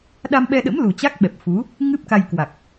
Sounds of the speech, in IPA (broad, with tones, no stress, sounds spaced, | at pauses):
ɗ a˧ m ɓ ɛ˧ ɗ ə̰˧˥ m l u˨˩ t͡ɕ a˦˥ k̚ ɓ ɛ˨˩ p̚ f u˨˦ | ŋ ɨ˦˥ p̚ k a˧ j k w a˨˩ k̚